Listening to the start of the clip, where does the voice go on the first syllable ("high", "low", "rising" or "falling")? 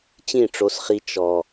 falling